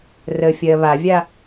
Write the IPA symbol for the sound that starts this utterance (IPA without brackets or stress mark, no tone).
r